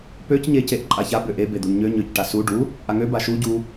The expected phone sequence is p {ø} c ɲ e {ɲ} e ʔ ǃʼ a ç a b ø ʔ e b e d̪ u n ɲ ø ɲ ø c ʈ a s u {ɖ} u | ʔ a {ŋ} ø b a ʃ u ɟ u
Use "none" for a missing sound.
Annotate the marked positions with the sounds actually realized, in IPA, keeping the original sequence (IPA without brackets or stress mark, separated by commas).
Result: ø, c, ɖ, ŋ